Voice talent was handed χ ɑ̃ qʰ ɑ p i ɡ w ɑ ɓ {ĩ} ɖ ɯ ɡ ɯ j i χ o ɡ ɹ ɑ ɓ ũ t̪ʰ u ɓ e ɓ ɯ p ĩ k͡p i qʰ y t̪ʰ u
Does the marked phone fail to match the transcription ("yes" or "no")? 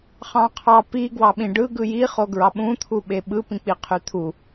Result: no